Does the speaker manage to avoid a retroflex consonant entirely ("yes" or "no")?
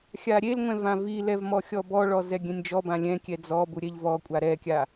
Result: no